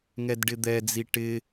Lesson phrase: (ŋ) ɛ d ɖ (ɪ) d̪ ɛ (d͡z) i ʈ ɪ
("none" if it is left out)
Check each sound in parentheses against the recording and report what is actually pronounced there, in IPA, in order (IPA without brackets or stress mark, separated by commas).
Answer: ŋ, ɪ, d͡z